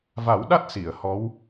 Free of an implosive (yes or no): no